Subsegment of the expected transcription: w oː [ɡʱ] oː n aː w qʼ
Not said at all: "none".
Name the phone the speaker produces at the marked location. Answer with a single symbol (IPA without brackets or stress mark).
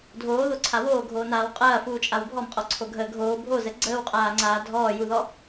ɡʱ